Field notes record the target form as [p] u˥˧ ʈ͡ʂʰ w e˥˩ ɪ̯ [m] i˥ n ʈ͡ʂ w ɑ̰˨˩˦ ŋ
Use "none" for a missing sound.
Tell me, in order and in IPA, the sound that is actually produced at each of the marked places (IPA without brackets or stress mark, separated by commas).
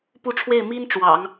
p, m